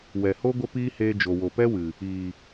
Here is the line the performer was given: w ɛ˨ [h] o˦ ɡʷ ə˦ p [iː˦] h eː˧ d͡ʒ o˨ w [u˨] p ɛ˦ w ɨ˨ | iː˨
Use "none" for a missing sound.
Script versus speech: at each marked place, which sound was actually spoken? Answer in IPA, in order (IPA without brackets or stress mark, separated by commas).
h, iː˦, o˨